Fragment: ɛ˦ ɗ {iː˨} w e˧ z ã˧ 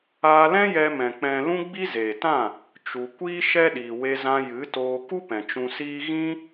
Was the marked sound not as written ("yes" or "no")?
no